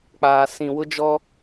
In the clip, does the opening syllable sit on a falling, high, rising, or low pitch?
low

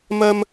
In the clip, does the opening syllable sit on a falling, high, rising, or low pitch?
high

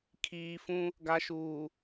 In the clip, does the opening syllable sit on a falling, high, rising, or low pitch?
low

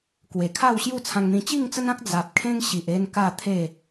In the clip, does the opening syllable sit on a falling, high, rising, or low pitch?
low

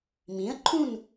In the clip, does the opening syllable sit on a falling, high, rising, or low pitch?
rising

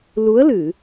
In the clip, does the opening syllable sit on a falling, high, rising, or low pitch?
rising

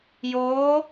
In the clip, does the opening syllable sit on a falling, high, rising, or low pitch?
rising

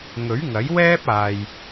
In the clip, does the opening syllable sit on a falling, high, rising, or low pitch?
rising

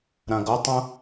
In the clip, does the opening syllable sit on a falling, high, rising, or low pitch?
low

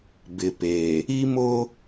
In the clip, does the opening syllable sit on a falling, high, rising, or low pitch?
low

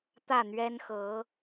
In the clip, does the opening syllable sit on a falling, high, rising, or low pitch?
falling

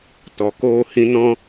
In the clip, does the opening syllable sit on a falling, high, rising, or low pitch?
low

